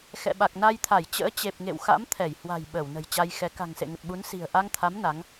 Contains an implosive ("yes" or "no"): yes